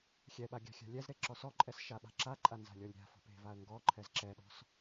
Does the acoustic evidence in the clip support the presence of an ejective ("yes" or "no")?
yes